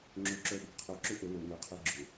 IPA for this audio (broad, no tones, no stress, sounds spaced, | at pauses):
ŋ͡ǁ ø ǁ œ ɗ ə̤ qʰ ø ǁ ʏ ʔ ʊ l ʊ ŋ ʏ qʰ e ɡ͡ǁ ʏ